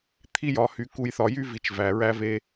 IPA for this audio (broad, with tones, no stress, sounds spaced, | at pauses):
t̪ʰ i˦ j ɒ˨ h y˨ k u˨ j θ ɒ˨ j y˦ v i˨ t͡ʃ v æ˨ ɹ æ˦ v e˦